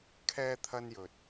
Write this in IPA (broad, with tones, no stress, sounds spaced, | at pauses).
kʰ ɛː˧ t̪ʰ ɐ˧ n j ɵ˨ t̚